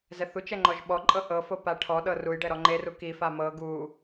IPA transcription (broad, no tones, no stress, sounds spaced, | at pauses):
z ɛ θ u t͡ʃ ɛ ŋ͡ǃ ɔ ʒ ɓ ɔ ǃʼ ɤ ʔ ɤ f o p a ʈʰ ɔ ɗ ɤ r u j ɖ ɛ ɾ ɔ ŋ͡ǃ e r u k i f a m ɤ ɡ u